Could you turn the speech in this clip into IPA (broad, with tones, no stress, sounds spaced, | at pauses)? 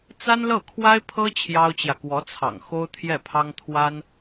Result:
t͡s a˥ n l ɤ˥˩ kʰ w a˥ ɪ̯ pʰ ɤ˥ t͡ɕʰ j ɑ˥ ʊ̯ t͡ɕ j ä˨ k w ɔ˧˥ t͡sʰ ɑ̰˨˩ ŋ x o˥ ʊ̯ t̪ʰ j ɛ˥˩ pʰ ɑ˥ ŋ t̪ʰ w a˥ n